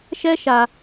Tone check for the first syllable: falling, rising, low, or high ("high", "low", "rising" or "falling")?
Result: high